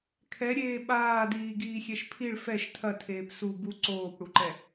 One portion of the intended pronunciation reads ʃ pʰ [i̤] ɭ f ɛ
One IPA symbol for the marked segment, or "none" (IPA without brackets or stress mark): i